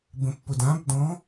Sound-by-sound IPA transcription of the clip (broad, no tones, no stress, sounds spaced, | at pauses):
b ə̃ pː ʊ d ã b d ɔ̃